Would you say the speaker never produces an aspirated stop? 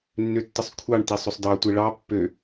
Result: no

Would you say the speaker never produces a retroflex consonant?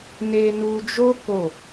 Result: yes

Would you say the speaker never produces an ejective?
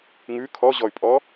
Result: no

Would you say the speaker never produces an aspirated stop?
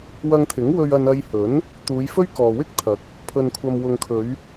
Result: no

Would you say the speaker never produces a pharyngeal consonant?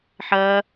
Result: no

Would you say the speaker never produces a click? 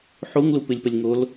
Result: yes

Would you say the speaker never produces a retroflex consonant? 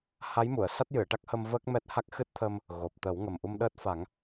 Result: no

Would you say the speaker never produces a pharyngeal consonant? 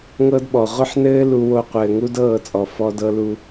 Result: no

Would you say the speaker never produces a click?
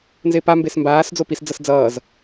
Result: yes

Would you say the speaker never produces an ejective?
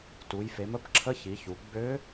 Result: yes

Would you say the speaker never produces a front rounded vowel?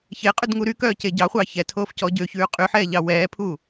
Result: no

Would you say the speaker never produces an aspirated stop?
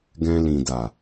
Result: yes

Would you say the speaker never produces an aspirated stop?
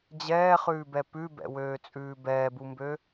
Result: yes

